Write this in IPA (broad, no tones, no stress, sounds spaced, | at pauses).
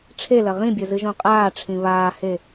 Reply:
ʈ͡ʂʰ e l ɐ ʁ ĩ bʲ ɵ z ɨ ʒ õ qʼ aː ʈ͡ʂʰ ĩ β aː h e